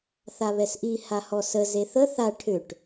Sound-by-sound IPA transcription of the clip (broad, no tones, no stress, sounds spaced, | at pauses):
θ a β ɛ s ʔ i h a h ɔ s ə z e θ ə θ a ʈʰ ʏ ʈ